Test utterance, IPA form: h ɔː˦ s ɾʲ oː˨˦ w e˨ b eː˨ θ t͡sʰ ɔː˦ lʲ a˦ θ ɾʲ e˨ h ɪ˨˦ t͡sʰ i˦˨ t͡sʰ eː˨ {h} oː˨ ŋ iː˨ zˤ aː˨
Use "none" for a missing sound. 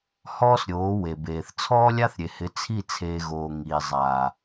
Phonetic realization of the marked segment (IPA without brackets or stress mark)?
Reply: ɣ